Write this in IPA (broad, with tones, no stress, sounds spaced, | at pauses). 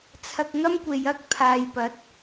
t͡sʰ ɐ˧ k̚ ŋ ɐ˥ m kʷ e˨˧ j ɐ˥ k̚ pʰ aː˨ j p ɐ˨˥ t̚